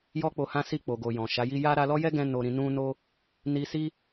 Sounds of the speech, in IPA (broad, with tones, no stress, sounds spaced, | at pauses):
j ɔ˦ k͡p o˧ h ã˦ s i˦˨ k͡p o˨ ɡ o˨ j ɔ̃˨ ʃ a˨˦ j i˦ j a˦ ɾ a˧ l ɔ˦ j ɛ˦ ɡ ɛ̃˧ n o˧ ɾ ĩ˧ n ũ˦ n o˦ | n i˧ s i˦